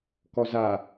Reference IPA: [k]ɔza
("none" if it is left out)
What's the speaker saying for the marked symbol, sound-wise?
k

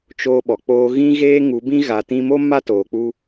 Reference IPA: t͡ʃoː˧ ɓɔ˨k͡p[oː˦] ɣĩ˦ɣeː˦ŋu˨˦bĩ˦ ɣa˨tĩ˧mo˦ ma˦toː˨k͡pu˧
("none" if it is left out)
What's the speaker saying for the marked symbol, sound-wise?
oː˦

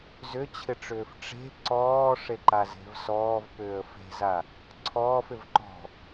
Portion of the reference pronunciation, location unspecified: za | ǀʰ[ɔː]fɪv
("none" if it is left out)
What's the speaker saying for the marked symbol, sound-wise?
ɔː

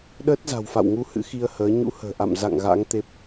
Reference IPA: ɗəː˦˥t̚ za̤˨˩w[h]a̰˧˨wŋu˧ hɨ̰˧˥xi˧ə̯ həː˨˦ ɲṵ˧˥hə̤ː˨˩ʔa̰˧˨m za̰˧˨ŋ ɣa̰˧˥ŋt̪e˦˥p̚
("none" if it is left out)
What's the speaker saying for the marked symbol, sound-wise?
f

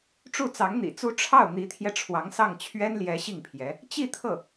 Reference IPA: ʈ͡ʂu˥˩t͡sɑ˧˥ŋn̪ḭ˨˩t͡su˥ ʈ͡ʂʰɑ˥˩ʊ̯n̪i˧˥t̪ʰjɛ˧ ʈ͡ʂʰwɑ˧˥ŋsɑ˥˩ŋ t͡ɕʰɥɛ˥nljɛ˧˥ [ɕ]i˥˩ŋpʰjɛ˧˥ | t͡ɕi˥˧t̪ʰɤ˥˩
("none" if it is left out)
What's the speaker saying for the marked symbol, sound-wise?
ɕ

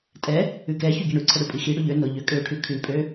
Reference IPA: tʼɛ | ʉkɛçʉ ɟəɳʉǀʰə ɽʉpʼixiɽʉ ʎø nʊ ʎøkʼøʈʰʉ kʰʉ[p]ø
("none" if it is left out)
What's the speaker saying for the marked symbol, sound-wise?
pʼ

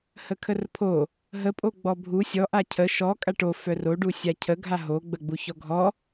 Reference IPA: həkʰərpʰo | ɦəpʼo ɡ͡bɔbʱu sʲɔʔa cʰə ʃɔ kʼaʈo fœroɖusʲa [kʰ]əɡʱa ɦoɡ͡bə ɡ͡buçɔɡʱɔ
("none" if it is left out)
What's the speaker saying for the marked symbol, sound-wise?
cʰ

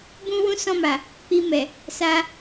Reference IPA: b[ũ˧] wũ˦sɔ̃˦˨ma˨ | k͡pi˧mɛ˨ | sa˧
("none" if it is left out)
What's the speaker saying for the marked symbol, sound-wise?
ũ˦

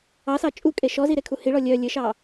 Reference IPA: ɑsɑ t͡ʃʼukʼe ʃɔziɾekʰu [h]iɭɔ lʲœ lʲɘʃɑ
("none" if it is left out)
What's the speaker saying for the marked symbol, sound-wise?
h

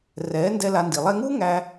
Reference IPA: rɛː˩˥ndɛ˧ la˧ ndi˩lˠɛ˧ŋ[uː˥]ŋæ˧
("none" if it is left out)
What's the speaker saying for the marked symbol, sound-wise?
uː˥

